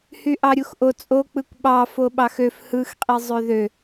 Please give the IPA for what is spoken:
hyʔɑɾʲuxʔo t͡sʼo k͡pɯkʷɓɑ foɓɑxøf hɯx qʼizˤøðø

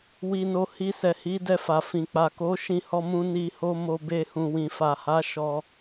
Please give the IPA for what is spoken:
wi˧no˧ hi˧ sɛ˨hi˨˦ dɛ˧fa˨ fĩ˨k͡pa˨ ko˨˦ ʃĩ˦˨hɔ˧mũ˧ ni˧ho˦mo˧be˧ hũ˨wĩ˨fa˨ha˨˦ ʃɔ˧

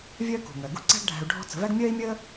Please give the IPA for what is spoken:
vʲœː˥kṳ˩ŋœ˩ ɡṳ˥ǀæ̤˥ɡɖʱæ̤˧u̯ ɖʱɔ̤˥ t͡sə̤˧væ˥ɡ mʲœː˥i̯mʲəː˥

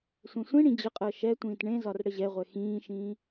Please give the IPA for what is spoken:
sʷẽsʷĩɽĩ d͡ʑəqʼəː ʃɛ tʷĩːtɳẽzɒr ɽəʑɛʁʷɛ xĩːʃĩː

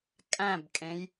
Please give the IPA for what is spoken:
kʼæ̃bkʼẽj

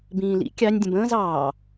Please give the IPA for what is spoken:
bĩːlḭ kʲɑnʲ dʲə̃bə̃ːz ɑː

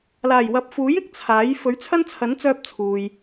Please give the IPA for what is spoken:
laː˨˩jwɐ˨p̚fuː˨˥j ɪ˧k̚t͡sʰaː˨˥j fɵ˨˥ɥt͡sʰɐ˥nt͡sʰɐ˨˥n t͡sœː˥p̚t͡sʰuː˨j

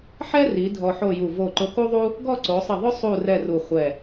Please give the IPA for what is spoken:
ħɛ˥ri˩˧ dʱɔ˧ħo˥˧ju˧˩ vo˧˩ǃʊ˧ku˥ðˤu˥ | ɡɔ˥˧ǀo˩˧sˤɪ˧˩ðˤʊ˥ sˤu˥˧ rɛ˥˧ru˧˩χʷɛ˧˩

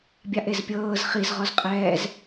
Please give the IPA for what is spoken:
bʲaʔezpʲɤːz χiz ʁɔzqʼɛːz

